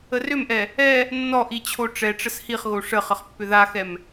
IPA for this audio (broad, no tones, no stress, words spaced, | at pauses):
ərʏmʔɛ | ɛ | nːɔʔi t͡ɕʰoʈ͡ʂɛʈ͡ʂəs hiχɣo ʂəχəχ pːʏðaxɛm